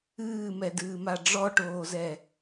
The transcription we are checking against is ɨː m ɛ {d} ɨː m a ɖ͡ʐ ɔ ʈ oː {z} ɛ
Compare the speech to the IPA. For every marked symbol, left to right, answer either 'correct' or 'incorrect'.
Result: correct, correct

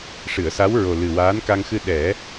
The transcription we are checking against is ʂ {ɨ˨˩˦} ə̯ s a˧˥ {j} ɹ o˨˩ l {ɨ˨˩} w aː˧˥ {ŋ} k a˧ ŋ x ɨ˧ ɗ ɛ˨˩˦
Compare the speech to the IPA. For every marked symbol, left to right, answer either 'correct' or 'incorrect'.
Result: incorrect: ɨ˨˩˨, incorrect: w, correct, incorrect: n

